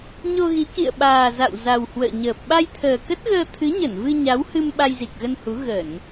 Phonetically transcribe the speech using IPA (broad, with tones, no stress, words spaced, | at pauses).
ɲo˧ɣi˨˦kḭ˧˨ə̯ɓaː˨˩ za̰˧˨wza˨˩w hwə̰ː˧˨ɲəː˨˩p̚ ɓa˧jt̪ʰəː˨˩kə˦˥t̚ɣəː˧ t̪ʰɨ˨˦ɲə˧˩nvɨ˧ ɲa˨˦whɨ˧m ɓa˧jzi˨˩k̚ɣə˧nhu˨˦ ɣə˧˩˨n